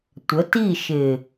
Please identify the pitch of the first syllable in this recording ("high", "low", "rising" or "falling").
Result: rising